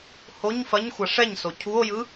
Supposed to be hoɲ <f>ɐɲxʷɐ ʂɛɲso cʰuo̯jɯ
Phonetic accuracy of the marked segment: correct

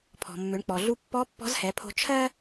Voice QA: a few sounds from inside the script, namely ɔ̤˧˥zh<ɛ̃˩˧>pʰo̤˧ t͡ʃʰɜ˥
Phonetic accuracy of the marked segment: incorrect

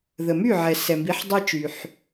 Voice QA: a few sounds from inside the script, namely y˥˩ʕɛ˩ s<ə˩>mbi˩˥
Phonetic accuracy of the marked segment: incorrect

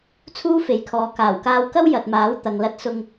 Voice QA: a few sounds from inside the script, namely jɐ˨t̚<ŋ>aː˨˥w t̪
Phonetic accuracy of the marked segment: incorrect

